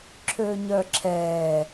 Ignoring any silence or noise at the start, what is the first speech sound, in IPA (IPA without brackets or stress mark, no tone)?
ǁʰ